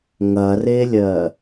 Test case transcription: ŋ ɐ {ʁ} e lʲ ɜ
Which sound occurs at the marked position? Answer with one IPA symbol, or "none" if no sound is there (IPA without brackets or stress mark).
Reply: r